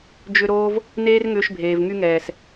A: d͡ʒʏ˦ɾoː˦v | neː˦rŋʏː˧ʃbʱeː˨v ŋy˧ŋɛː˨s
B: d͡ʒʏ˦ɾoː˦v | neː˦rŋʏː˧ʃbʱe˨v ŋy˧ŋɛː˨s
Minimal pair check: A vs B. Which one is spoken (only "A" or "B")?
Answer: A